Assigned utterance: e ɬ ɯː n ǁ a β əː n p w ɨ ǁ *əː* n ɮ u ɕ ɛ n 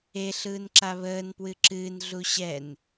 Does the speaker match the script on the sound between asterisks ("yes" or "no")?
no